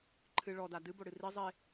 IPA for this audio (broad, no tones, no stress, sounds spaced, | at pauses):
ǃʰ ɨ ɭ ɔ d a d ɨ b o ɽ ɨ r i zˤ e